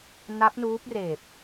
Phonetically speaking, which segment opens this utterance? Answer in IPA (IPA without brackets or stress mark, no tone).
n